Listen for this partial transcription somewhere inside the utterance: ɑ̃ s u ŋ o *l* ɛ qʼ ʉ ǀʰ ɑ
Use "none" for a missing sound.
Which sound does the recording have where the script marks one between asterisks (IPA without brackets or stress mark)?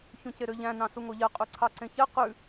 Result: ʎ